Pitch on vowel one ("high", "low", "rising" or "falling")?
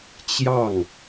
falling